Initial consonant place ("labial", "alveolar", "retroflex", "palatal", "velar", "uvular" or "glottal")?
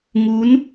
velar